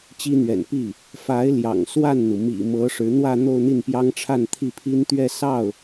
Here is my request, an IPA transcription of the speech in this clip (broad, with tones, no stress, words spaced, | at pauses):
t͡ɕi˥n̪ɥɛ̰˨˩n pi˥˩ | fa˧˥ɪ̯ ljɑ̰˨˩ŋswa˥˩nn̪u˩ mḭ˨˩mɤ˧˥ʂɻ̩˧˥ n̪wä˥˧ n̪o˥˧ʊ̯n̪i˥˩npjɑ˥ŋʈ͡ʂʰa˥˧n t̪ʰi˥˩pʰi˥nt̪ɥɛ˥˧ sɑ˥˩ʊ̯